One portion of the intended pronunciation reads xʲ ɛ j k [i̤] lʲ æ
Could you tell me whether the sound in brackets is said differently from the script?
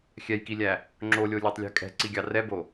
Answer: yes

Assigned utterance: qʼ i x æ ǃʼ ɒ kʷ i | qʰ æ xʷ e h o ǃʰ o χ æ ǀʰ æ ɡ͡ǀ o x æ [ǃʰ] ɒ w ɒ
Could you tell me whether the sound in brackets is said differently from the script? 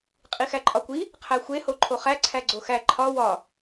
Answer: no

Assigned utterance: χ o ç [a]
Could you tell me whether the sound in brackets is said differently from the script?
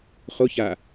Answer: yes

